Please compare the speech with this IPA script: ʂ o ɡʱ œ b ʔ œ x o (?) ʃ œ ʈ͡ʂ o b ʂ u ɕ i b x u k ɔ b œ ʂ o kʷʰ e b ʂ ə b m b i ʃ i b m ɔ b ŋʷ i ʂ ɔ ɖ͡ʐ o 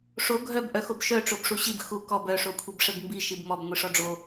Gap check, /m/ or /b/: b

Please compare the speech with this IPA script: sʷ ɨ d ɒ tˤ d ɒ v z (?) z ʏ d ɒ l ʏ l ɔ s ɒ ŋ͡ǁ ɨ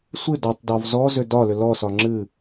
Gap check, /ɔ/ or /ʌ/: ɔ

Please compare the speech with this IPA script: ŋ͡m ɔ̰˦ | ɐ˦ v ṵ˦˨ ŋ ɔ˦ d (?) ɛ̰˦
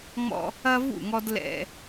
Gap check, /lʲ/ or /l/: l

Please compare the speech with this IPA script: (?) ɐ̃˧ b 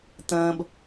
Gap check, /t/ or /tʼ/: t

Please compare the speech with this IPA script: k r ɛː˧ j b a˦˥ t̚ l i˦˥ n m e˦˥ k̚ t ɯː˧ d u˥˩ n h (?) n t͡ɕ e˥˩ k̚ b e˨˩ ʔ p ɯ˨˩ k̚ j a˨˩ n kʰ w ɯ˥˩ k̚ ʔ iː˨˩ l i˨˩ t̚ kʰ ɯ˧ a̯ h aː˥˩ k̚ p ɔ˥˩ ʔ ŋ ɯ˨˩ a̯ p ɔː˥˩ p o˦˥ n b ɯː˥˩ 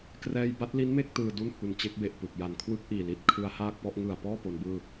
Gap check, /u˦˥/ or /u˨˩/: u˨˩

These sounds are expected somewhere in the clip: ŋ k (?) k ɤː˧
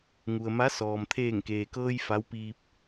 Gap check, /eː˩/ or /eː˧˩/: eː˩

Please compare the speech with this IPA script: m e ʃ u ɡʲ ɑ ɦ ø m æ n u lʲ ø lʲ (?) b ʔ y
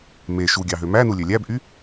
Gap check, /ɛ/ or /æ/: æ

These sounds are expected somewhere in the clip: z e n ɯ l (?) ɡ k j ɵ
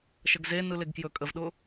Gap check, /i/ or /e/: e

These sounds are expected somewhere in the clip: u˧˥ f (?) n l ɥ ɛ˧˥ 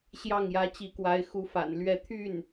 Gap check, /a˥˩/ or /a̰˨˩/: a̰˨˩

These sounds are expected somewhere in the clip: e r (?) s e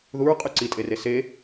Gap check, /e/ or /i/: e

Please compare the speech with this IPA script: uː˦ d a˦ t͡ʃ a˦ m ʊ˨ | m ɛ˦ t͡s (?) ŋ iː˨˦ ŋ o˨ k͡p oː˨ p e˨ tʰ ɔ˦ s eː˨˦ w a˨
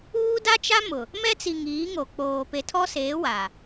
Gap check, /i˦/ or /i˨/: i˨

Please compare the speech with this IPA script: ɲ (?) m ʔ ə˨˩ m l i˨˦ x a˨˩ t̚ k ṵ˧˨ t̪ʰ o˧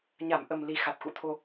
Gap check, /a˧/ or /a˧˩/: a˧˩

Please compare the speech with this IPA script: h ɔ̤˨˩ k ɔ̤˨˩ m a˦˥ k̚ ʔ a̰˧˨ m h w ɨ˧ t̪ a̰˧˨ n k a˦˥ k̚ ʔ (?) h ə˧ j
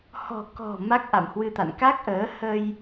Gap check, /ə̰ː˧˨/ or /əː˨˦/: əː˨˦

